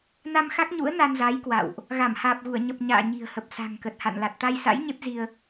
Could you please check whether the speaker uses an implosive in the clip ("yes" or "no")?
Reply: no